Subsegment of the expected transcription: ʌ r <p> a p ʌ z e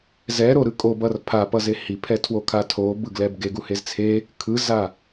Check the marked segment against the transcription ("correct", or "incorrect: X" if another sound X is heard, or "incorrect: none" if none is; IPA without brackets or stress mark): incorrect: pʰ